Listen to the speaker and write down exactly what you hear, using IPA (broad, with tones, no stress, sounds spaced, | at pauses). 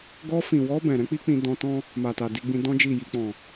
ɡ ɔ˧ f ĩ˨ w ɔ˧ b ɛ̃˨ ɾ ɛ̃˨˦ k͡p i˦ k͡p ĩ˧ d ɔ̃˧ t ɔ̃˦ | m a˨ t a˨ d i˧ ɡ͡b ĩ˧ d ɔ̃˦ d͡ʒ i˦˨ j i˧ k͡p ɔ̃˨